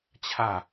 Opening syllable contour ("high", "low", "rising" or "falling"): falling